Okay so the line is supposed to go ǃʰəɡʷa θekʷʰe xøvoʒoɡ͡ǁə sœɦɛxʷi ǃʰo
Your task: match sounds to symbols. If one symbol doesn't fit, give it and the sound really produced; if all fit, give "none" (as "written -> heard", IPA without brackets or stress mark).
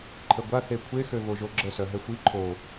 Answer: none